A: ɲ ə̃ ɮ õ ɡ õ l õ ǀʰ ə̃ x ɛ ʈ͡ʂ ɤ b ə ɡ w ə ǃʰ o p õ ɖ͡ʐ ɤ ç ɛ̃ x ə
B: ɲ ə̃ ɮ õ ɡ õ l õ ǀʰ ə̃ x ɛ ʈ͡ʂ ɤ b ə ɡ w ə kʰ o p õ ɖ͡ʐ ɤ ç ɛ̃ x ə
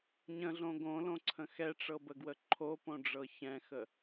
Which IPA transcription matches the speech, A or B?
A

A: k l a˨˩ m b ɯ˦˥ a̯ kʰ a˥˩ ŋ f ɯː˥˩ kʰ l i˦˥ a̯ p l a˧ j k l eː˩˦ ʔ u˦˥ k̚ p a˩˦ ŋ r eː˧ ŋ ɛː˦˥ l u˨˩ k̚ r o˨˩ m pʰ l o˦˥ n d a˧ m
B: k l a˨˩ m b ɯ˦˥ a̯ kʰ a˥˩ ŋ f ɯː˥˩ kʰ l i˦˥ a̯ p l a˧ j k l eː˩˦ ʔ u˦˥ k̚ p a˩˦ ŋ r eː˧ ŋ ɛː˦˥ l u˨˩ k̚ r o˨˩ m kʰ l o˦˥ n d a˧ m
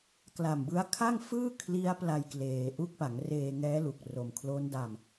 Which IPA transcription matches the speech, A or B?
B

